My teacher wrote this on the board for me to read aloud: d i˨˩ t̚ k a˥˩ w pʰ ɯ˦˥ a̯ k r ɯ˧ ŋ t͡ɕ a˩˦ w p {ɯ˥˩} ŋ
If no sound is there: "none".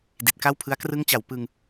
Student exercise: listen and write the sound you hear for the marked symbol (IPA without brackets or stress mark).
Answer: ɯ˧